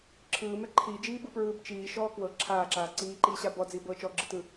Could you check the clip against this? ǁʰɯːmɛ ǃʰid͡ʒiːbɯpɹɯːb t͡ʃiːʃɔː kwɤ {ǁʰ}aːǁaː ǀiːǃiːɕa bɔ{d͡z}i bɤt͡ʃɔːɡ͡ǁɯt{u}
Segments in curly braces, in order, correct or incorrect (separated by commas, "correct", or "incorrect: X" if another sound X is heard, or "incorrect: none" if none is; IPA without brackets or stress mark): correct, correct, incorrect: ɯ